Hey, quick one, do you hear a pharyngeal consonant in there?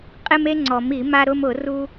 no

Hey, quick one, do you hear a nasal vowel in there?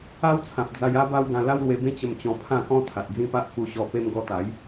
yes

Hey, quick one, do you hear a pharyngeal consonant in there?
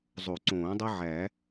yes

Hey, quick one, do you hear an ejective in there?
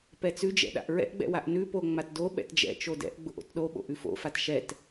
no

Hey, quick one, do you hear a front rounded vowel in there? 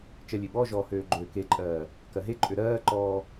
yes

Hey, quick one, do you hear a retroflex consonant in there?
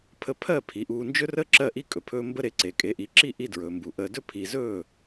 no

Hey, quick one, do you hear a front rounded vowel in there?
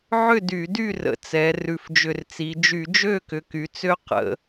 yes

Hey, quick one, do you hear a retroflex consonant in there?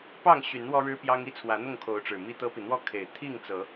yes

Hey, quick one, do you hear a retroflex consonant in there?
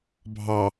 no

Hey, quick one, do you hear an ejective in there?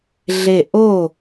no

